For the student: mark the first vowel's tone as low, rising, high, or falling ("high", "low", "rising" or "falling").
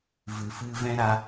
low